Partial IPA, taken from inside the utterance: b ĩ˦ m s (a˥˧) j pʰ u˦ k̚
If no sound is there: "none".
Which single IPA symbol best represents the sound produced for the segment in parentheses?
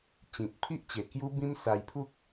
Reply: a˧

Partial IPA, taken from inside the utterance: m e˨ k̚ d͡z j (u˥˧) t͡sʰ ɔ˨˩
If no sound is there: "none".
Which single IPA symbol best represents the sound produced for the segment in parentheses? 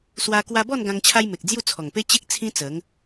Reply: u˥˧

